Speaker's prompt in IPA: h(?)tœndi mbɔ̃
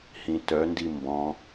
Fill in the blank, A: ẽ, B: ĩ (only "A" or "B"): B